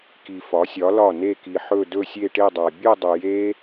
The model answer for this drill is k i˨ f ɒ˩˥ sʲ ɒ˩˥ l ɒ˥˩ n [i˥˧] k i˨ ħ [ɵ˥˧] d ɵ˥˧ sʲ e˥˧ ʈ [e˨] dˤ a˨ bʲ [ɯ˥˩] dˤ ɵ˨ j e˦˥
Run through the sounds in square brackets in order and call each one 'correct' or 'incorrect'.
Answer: incorrect: e˥˧, correct, incorrect: e˥˧, incorrect: ɯ˥˧

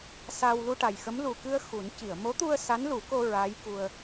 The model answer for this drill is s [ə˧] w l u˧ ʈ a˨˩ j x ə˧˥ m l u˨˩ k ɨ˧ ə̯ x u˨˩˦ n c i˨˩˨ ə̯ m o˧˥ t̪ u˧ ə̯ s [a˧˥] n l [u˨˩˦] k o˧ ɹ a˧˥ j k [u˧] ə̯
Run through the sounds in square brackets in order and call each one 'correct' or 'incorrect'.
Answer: incorrect: a˧, correct, correct, correct

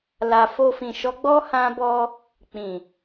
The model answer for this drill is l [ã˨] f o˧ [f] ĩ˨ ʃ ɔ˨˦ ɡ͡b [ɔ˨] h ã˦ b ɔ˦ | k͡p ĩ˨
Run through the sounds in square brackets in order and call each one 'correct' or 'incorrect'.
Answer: incorrect: a˨, correct, incorrect: ɔ˦

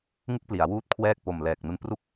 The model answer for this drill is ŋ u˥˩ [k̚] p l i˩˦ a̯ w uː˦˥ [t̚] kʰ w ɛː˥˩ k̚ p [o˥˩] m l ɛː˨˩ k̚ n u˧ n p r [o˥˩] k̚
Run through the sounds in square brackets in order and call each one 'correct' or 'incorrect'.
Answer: correct, correct, incorrect: o˨˩, incorrect: u˥˩

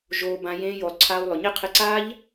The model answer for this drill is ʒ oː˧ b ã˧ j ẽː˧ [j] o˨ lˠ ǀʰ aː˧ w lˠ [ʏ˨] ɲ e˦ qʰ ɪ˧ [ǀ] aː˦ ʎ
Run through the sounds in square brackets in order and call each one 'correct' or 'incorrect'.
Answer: correct, correct, correct

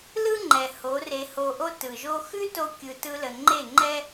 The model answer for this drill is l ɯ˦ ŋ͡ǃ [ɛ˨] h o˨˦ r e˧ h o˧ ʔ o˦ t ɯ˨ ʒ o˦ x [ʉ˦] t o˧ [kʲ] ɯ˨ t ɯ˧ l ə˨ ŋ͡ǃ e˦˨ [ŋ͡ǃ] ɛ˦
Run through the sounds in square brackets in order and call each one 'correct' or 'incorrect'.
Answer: correct, correct, correct, correct

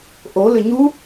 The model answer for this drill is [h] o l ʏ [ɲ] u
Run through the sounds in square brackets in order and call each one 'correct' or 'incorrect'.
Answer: incorrect: ʔ, correct

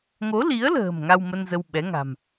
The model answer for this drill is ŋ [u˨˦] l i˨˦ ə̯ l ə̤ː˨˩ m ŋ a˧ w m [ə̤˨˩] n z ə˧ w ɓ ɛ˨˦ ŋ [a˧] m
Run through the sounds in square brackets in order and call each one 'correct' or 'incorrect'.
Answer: incorrect: o˨˦, incorrect: ə˧, incorrect: a̤˨˩

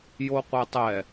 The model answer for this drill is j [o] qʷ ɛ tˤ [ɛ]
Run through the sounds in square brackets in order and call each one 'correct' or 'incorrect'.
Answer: correct, correct

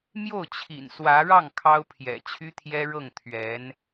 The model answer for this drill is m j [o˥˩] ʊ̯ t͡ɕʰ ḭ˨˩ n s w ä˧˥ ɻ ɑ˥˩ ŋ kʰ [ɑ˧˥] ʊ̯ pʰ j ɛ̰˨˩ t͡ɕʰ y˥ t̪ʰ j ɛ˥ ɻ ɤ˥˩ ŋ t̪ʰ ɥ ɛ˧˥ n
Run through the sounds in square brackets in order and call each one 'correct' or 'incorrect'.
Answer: correct, incorrect: ɑ˥

